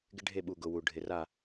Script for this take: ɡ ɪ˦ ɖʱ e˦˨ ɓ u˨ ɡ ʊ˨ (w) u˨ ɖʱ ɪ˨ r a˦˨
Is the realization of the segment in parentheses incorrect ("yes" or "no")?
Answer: no